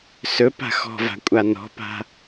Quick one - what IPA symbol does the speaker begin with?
s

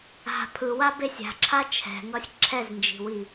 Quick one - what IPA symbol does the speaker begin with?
a̤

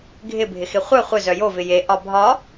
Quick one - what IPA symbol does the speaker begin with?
ɡʱ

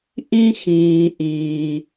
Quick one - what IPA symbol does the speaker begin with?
ʔ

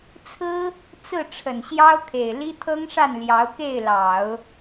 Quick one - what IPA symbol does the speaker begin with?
t͡sʰ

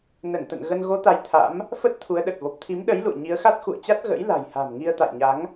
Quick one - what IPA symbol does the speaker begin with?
n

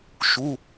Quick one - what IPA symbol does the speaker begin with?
ʃ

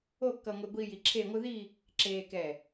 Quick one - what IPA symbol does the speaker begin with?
o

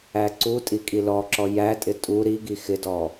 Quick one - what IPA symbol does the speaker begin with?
æ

